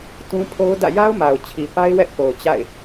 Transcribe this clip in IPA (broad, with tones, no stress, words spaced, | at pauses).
tũ˦ pʰo˦ʊ̯dä̰˦˨ ja˦ʊ̯ ma˨ʊ̯t͡ɕʰi˨pa˦ɪ̯ wɛ˦ʔpo˨ʊ̯ t͡ɕa̰˦˨ɪ̯